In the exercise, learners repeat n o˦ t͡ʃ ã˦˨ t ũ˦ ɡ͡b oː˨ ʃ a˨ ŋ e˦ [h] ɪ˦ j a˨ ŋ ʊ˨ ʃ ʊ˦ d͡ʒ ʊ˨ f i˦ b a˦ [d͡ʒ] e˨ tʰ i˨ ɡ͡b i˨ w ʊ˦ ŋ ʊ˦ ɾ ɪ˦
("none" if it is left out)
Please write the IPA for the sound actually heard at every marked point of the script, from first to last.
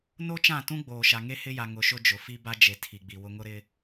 h, d͡ʒ

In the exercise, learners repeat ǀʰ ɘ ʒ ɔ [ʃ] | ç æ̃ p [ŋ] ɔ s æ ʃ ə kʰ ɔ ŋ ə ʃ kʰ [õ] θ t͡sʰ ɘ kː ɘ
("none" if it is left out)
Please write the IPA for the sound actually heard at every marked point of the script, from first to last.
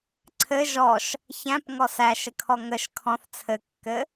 ʃ, ŋ, ɔ̃

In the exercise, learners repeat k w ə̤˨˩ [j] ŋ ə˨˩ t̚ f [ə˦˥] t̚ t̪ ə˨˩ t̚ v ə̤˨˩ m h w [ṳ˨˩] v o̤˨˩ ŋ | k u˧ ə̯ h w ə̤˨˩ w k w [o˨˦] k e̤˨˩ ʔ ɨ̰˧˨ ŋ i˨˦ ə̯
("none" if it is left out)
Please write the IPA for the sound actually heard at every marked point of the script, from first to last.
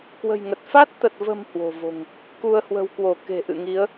j, a˦˥, o̤˨˩, o˧˩

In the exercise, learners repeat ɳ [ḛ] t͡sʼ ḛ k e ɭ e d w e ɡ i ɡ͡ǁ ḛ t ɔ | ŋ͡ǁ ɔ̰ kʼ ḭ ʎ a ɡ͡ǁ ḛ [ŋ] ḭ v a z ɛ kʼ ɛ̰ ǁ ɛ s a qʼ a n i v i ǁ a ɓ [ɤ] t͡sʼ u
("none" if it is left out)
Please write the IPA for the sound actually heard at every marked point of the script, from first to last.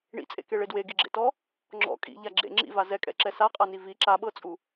ḭ, ŋ͡ǁ, ɤ

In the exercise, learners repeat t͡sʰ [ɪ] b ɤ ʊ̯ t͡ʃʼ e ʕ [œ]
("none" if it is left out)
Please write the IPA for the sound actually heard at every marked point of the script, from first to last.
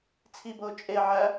i, æ

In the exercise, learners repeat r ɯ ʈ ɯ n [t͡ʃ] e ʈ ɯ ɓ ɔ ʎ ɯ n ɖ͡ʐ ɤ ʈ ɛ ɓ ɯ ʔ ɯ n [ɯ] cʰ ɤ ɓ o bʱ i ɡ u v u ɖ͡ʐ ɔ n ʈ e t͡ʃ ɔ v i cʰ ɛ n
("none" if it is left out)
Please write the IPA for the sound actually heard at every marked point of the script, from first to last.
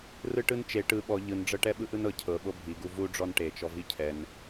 t͡ʃ, ɤ

